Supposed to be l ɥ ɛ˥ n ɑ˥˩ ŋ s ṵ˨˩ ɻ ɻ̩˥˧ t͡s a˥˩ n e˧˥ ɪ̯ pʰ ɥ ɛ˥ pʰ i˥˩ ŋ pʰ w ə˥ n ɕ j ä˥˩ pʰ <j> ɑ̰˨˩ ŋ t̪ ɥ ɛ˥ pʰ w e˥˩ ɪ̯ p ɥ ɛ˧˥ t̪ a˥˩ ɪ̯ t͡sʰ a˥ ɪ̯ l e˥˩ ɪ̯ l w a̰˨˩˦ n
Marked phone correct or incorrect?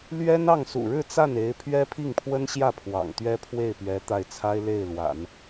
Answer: incorrect